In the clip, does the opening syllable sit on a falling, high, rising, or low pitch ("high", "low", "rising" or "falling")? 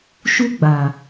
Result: high